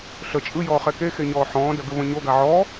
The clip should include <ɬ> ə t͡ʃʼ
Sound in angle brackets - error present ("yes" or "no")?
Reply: no